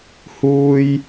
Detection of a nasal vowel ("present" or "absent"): absent